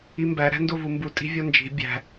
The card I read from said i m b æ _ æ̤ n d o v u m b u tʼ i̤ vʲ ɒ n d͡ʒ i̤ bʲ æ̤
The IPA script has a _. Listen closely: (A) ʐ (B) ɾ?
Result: B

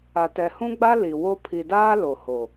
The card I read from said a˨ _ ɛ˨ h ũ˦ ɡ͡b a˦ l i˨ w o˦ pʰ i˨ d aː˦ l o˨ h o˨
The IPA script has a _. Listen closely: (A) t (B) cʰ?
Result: A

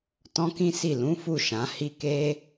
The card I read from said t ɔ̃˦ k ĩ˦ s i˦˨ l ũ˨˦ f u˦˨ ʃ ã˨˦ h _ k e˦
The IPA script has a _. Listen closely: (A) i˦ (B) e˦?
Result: A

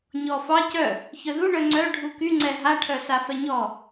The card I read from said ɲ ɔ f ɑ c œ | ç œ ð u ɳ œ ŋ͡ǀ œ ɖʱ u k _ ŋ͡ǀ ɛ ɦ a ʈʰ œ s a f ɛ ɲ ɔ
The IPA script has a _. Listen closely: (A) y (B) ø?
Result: A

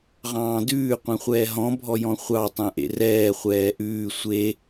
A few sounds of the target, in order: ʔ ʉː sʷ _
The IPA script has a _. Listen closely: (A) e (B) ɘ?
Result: A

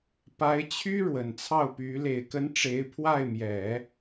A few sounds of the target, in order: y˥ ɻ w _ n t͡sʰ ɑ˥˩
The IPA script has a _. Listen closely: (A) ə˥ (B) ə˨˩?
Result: B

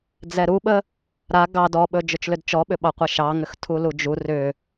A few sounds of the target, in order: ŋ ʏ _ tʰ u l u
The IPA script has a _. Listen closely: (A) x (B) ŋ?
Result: A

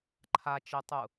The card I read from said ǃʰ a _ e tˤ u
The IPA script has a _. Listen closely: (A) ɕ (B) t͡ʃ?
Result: B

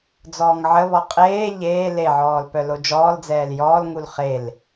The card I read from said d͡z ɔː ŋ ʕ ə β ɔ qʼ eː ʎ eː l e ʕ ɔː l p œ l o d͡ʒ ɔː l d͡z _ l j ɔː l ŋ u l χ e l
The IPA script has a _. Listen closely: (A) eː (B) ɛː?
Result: B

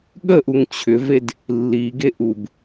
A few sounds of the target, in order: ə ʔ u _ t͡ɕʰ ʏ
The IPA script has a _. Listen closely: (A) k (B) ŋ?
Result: B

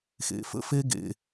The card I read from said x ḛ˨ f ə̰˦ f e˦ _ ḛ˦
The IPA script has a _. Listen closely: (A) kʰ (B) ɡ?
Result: B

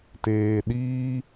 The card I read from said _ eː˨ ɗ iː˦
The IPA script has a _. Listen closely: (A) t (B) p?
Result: A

